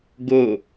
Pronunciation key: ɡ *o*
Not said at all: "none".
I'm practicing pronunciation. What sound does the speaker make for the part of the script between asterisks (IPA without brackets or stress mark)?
o